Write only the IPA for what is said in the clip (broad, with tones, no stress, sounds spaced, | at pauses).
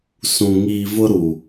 s ũ˨ ŋ iː˨ v ʊ˦ ɾ u˨